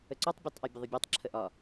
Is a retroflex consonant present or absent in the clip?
absent